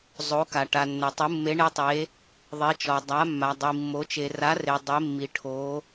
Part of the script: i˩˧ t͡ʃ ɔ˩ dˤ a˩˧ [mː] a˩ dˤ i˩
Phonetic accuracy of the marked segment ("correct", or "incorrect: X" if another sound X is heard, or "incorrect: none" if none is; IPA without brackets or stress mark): correct